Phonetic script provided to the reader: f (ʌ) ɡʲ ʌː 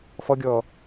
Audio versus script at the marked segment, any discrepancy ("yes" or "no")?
no